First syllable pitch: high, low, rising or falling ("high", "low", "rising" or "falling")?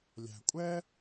low